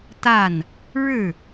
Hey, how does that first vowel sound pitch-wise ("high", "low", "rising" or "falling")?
falling